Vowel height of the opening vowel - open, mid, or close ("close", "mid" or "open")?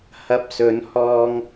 open